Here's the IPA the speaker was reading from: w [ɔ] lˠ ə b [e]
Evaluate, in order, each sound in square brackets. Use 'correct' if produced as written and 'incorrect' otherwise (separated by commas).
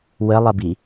incorrect, incorrect